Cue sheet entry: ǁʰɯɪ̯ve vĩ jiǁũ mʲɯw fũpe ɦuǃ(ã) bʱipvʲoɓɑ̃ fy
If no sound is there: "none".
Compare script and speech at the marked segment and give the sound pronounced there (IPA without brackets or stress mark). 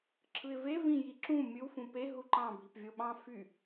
ɑ̃